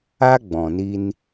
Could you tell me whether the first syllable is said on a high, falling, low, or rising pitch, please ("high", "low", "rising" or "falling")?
high